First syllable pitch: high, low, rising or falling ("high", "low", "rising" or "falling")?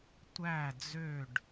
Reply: falling